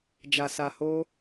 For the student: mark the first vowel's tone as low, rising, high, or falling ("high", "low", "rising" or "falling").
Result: low